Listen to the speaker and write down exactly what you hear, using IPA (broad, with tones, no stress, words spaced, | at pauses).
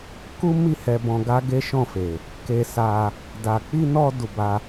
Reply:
ku˦mi˦˨ hɛ˧bɔ̃˧ ɡa˦ɡe˦ʃɔ̃˦˨fe˨ | ke˧sa˧ | da˨k͡pi˧nɔ˧ du˧ba˦